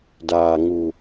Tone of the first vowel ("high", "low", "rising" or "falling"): low